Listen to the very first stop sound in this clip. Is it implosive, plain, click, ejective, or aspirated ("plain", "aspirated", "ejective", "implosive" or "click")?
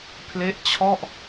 aspirated